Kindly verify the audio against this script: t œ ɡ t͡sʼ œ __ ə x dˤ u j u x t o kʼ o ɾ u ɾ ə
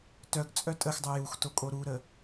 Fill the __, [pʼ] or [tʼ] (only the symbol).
tʼ